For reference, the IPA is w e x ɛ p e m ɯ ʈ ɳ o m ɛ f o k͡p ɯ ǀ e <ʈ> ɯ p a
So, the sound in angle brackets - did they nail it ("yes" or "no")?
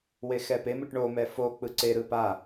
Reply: no